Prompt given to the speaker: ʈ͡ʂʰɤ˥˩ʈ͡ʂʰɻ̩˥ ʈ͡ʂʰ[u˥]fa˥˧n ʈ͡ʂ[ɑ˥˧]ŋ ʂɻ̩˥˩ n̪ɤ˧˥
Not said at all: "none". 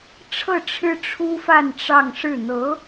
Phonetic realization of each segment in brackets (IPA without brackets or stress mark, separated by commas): u˥, ɑ˥˧